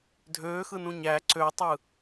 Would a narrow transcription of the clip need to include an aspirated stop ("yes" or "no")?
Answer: no